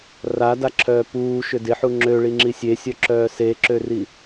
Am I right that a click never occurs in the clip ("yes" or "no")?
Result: no